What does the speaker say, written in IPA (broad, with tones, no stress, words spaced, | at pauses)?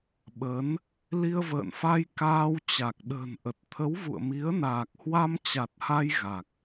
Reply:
ɓə˨˦n | li˧ə̯və̰ː˧˨nfa˧j kaː˧wt͡ɕa˨˩k̚ ɗə̤ː˨˩nʔə˨˩t̚ t̪ʰə˨˦wvṵ˧˨ə̯mi˨˦ə̯naː˨˩k̚ hwa˧mt͡ɕa˨˩t̚ha˧j ɣa˨˩k̚